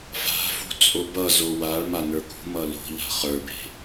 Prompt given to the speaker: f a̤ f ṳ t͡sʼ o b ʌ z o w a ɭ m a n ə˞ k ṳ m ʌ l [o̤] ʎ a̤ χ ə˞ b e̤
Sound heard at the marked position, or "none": o̤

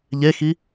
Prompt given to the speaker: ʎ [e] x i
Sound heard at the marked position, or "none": e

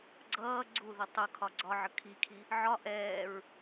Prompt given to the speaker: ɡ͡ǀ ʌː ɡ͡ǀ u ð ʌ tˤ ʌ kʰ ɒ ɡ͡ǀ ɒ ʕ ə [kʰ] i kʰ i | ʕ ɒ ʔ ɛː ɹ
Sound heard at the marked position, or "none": kʰ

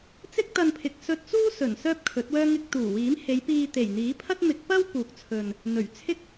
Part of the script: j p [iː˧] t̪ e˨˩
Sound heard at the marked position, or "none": iː˧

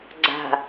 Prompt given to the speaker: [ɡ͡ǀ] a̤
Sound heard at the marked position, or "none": ɡ͡ǀ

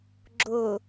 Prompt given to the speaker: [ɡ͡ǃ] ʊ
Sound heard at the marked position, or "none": ɡ͡ǁ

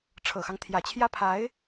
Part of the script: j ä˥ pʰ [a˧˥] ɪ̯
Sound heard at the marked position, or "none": a˧˥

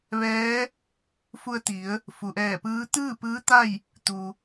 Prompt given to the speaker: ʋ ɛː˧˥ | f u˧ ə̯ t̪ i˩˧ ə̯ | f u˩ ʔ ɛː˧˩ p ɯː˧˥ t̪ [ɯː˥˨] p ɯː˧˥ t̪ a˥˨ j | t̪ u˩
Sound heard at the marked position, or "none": ɯː˥˨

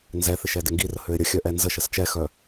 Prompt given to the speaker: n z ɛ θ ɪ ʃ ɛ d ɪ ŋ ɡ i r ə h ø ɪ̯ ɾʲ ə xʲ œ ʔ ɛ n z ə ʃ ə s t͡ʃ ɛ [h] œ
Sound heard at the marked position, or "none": x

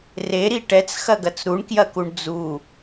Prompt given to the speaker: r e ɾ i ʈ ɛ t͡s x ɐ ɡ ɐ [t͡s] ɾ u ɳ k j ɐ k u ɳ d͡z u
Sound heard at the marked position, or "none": t͡s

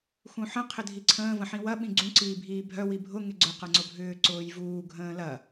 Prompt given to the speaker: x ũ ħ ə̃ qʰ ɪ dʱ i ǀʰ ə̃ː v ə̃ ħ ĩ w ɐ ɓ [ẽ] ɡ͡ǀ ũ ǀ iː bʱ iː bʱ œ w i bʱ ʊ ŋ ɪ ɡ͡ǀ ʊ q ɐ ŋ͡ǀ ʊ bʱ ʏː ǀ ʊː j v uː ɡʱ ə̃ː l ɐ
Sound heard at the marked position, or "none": ĩ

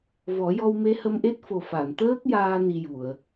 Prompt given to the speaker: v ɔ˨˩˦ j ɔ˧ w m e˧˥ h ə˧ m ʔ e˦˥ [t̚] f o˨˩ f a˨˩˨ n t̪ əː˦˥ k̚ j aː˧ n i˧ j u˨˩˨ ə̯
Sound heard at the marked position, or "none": t̚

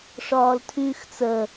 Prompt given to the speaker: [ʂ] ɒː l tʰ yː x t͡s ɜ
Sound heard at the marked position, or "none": ʂ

